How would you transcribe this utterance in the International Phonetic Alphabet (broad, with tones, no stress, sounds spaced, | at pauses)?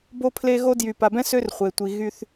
b o˦ pʰ l e˦ ɣ o˦ d j y˨ p a˨ b ɛ̃˦ s ø˦ r χʷ e˨ tʷ i˨ ɣ y˦ θ